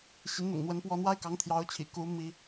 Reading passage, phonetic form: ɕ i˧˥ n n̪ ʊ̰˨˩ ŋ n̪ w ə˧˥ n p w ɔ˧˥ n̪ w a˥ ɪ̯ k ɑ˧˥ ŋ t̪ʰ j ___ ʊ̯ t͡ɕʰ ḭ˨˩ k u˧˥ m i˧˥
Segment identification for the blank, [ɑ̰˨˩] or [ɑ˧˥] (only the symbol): ɑ˧˥